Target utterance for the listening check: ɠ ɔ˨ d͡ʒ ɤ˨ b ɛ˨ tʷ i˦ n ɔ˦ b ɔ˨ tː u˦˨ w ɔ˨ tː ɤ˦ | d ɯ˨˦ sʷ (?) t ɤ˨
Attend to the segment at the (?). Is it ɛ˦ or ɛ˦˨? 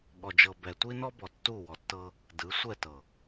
ɛ˦˨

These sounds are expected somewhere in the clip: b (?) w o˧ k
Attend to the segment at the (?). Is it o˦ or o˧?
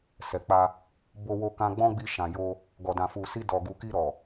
o˧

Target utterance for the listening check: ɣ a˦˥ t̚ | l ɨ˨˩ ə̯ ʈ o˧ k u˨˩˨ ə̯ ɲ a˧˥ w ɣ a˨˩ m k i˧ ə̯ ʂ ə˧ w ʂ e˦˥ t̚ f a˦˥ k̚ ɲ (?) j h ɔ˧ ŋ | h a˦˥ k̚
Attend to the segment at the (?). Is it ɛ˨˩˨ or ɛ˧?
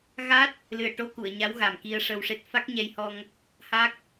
ɛ˧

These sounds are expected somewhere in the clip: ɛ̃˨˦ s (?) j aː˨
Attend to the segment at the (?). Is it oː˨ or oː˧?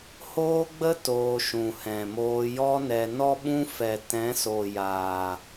oː˨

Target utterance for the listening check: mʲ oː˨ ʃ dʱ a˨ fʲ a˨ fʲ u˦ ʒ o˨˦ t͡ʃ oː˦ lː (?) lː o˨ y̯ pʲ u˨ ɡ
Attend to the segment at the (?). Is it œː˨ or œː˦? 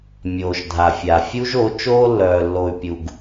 œː˨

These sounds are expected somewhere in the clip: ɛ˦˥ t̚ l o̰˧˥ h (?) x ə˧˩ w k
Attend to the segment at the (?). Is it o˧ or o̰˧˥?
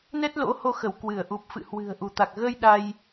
o˧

